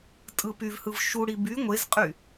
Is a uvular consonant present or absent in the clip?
present